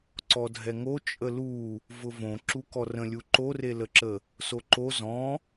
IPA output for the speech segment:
ǀ ɔ dʱ ɛ ŋ o t͡ʃʼ ə l u | v ʊ v õ ǁ u k ɔ r ə̃ lʲ u ǃ o r e l ə ǁ ə | s o ǃ o z ɔ̃

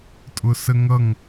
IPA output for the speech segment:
tʼ ʊ s ə ŋ ʌ ŋ

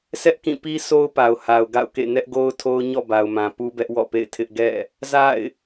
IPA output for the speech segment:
sʰ ɛ˦ ʔ k ĩ˦˨ p i˦ sʰ o˦ ʊ̯ p a˨ ʊ̯ h a˨ ʊ̯ ɡ a̰˦˨ ʊ̯ k ḛ˦˨ n ɛ˦ ʔ ɡ o˦ ʊ̯ tʰ o˦ ʊ̯ ɲ ɔ̰˦˨ b a˨ ʊ̯ m ã˨ p u˦ b ɛ˦ ʔ w ɔ̰˦˨ p ḛ˦˨ ɪ̯ tʰ ɪ˦ ʔ ɡ ɛ̰˦˨ | z a̰˦˨ ɪ̯

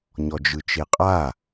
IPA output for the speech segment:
ɲ ɔ d͡ʒ ɯ t͡ʃ e qʼ a

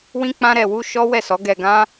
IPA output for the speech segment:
w ĩ˦ k͡p ã˦ ɾ ɛ˧ w u˦ ʃ ɔ˦ w ɛ˦˨ s ɔ˨˦ ɡ ɛ˧ ɡ ã˦

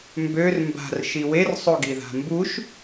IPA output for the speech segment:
m b ø r m b a̤ r ʃ i w e r sˤ o ɡ i ð a̤ m b u ʃ

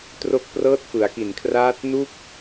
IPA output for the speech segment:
t r o˦˥ k̚ p r ɤː˦˥ t̚ f ɯ˩˦ a̯ k i˨˩ n kʰ r aː˦˥ t̚ n u˥˩ k̚

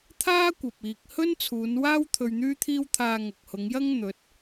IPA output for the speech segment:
t̪ʰ aː˥ kʷ ɐ˨ p̚ iː˨ k̚ h ɵ˥ n t͡sʰ uː˨˧ n w aː˥ w t̪ʰ ɵ˧ ɥ n̪ yː˥ t̪ʰ iː˥ w t̪ʰ aː˧ ŋ ɐ˨ k̚ h ʊ˨˧ ŋ j ɐ˥ ŋ n̪ ɵ˨˥ t̚

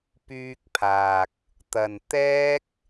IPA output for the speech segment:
p yː˧ k̚ pʰ aː˨ k̚ | t̪ ɐ˨ n t̪ ɛː˥ k̚

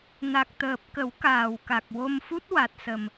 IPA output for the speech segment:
n a˨˩ k̚ t̪ əː˨˩ p̚ k ə˨˩˦ w k aː˨˩ w k a˨˩ k̚ w o˧ m f u˦˥ t̚ w a˨˩ t̚ s ə˨˩ m

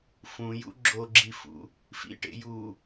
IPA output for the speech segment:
f ũ j ṵ ɡ͡ǁ o ɡ͡ǁ i f ṵ | f ḭ ʈ ḛ j uː

